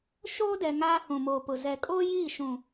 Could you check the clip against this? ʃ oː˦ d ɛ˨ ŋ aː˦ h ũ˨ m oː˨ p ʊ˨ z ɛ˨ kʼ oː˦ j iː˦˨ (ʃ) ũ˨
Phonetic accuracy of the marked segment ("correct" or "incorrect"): correct